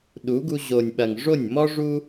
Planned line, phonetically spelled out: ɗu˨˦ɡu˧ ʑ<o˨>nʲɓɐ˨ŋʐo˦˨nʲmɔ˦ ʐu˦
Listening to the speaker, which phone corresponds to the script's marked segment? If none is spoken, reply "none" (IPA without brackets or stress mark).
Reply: o˨